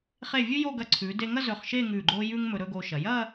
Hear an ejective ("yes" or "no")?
no